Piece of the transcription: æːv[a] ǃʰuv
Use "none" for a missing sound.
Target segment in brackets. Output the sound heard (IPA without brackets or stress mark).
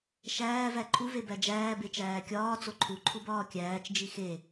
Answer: æ